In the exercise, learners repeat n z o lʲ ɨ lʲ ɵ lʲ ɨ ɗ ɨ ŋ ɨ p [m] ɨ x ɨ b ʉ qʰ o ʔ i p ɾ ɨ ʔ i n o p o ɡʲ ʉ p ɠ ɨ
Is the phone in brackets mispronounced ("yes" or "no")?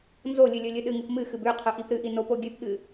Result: no